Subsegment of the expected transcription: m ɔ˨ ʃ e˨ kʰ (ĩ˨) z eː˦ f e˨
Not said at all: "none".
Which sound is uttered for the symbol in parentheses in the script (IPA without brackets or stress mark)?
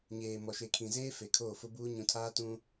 ĩ˨